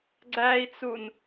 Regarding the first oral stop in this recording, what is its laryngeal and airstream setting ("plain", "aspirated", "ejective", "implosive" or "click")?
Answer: click